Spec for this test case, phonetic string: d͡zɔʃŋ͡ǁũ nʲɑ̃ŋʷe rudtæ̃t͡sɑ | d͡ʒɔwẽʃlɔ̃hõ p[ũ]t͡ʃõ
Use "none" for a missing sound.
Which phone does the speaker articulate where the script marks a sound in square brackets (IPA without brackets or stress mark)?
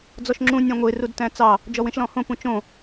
ũ